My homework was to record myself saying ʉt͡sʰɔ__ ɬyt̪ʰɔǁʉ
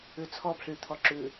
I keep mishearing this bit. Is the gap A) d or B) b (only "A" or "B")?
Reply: B